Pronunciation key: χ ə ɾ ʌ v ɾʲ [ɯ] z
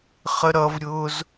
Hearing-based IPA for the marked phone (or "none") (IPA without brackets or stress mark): ʊ